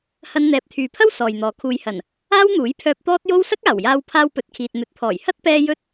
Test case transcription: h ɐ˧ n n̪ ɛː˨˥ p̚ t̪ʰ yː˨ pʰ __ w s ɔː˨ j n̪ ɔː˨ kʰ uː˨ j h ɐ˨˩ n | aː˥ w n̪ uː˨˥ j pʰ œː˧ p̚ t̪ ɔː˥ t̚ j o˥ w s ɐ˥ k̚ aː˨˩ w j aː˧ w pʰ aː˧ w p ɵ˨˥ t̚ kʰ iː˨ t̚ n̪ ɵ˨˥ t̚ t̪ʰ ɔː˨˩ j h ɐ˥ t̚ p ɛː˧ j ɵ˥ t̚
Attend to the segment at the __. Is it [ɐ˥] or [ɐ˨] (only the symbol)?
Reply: ɐ˥